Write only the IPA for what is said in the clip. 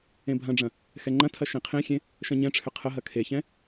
ẽbʱɐ̃ɖ͡ʐɐ̃ | xɛŋ͡ǃɐ̃tʰɐ ʃẽqʰẽxʲẽ | ʃɐ̃ɲɛ̃ʈ͡ʂʰʏ qʰəɦɐ kʰeçɛ̃

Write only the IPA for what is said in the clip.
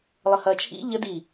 lˠəhɐːt͡ʃʰḭ ʎə di

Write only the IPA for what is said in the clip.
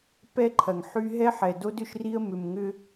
pɛ˦ǃʰɐ˨ŋħy˦ ɦɛ˦ħɛ˨do˦d ʏ˦ʃri˦ə̯ mʏ˨mŋʏ˦

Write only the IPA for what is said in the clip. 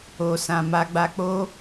o˨sã˨ ma˧ɡ͡ba˧k͡po˦

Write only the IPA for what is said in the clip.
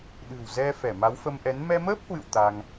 ɗɨ̤˨˩wzɛ˧ fɛ˧˩ma˨˦wfə˧mʔɛ˨˦n mɛ˧məː˦˥p̚hwɨ̰˧˨w t̪a˧ŋ

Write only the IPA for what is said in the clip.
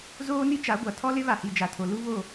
zoː˦ni˦t͡ʃa˨˦ɡʷa˨ tʰɔ˦lɪ˦ βa˨hi˨d͡ʒa˨tʰo˨ lu˦βo˦˨

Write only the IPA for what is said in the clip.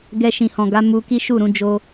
ɡɛ˧ʃĩ˨hɔ̃˨ɡa˨˦ mu˧ ki˦ʃu˦˨ɾũ˨˦ d͡ʒo˧

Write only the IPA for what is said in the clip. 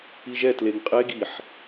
iʒɛ tleŋqʼe ɡiħ

